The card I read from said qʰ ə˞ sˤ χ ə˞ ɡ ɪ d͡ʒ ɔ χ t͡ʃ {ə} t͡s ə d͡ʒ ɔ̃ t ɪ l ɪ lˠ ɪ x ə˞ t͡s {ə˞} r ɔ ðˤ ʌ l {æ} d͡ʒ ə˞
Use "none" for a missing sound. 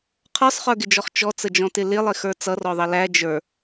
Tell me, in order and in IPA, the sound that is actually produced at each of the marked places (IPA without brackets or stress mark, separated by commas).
ɔ, ʌ, æ